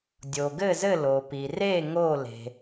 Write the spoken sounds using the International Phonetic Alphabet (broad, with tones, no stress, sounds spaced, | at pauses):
dʲ o˩ ɡ ɘ˥˩ z ɘ˥˩ l o˩ p i˩ r e˥˩ ŋ o˥˩ l e̤˩